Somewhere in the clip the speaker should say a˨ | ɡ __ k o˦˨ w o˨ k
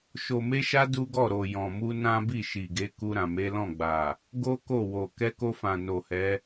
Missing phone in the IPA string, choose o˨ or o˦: o˦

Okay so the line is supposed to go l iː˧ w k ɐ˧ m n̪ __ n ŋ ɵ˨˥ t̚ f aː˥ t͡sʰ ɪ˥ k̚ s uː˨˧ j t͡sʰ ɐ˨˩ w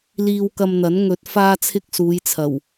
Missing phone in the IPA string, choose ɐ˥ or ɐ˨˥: ɐ˨˥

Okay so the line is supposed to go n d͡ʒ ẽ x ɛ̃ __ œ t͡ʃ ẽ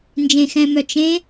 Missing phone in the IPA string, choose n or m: m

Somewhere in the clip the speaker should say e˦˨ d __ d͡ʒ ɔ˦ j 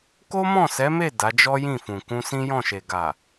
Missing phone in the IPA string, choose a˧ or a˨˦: a˨˦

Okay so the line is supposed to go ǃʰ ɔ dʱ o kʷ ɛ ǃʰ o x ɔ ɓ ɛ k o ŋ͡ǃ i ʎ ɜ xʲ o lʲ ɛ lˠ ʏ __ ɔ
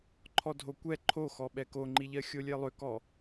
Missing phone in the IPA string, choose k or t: k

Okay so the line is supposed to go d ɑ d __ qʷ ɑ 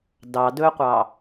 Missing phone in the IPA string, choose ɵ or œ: ɵ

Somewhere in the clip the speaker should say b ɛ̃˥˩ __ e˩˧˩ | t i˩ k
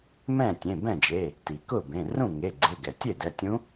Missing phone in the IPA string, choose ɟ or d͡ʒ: d͡ʒ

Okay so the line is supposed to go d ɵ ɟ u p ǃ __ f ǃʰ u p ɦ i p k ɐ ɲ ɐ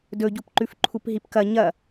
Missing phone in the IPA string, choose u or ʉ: ʉ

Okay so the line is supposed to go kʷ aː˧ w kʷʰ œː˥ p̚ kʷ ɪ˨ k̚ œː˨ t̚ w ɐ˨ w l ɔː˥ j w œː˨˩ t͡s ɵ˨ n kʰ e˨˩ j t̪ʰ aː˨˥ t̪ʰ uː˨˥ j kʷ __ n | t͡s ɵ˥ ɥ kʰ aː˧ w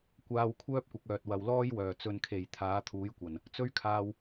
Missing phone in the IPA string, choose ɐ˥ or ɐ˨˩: ɐ˨˩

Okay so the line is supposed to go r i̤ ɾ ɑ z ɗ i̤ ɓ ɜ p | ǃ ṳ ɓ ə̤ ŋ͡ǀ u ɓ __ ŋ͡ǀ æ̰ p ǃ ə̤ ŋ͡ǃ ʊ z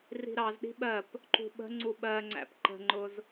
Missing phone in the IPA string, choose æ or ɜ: ɜ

